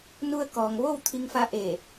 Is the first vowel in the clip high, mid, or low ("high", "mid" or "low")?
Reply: high